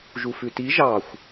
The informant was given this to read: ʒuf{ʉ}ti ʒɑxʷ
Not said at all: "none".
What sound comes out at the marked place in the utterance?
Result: ʉ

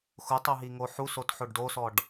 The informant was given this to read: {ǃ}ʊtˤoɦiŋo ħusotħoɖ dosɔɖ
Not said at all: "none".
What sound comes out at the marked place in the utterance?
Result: x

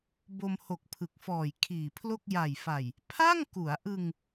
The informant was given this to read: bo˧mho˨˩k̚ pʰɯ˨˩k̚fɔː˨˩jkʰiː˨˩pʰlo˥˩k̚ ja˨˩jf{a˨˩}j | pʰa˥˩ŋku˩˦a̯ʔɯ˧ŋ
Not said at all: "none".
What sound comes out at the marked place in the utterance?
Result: a˨˩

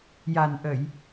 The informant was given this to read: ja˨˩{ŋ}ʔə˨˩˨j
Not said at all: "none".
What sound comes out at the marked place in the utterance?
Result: n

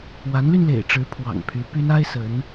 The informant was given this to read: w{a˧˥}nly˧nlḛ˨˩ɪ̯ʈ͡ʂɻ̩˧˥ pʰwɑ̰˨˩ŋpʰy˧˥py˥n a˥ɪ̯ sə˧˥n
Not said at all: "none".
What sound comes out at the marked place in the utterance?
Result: a˧˥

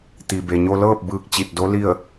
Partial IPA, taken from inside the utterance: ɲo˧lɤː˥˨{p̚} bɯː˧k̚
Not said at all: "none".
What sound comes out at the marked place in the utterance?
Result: p̚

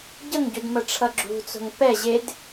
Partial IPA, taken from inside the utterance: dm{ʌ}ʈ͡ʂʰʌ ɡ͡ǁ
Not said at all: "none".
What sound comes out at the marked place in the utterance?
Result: ʌ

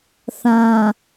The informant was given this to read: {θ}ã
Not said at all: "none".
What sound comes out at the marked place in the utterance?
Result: θ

